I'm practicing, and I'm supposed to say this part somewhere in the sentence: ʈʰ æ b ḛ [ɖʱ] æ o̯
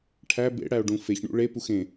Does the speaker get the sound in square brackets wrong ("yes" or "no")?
yes